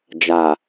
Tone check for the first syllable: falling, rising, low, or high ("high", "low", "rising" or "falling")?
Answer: low